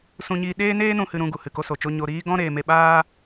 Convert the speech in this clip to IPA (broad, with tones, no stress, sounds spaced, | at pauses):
s ũ˦ ɲ iː˦ ɗ eː˦ n eː˦ n ũ˧ h ɨ˧ ɾ ũ˧ ɡ u˨ h ɨ˨ k o˧ s o˨ t͡ʃ o˧ ɲ o˧ ɾ iː˦ ɡ ɔ̃˦ ɾ eː˧ m e˧ ɓ aː˦